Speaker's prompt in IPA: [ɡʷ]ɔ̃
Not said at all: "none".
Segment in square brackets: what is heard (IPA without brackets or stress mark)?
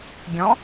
ɡʲ